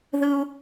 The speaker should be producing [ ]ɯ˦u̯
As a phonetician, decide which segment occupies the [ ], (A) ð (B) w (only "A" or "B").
A